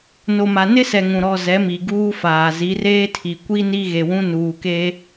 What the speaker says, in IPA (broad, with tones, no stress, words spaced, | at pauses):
no˨ma˨nɪ˦sɛ˨ ŋũ˨ɾɔ˦˨ zɛ˨˦mi˨ ɡuː˦faː˨ zi˨˦reː˦ tʰi˨ kʷi˦ ni˦ɣe˨wũ˦ nuː˨ke˦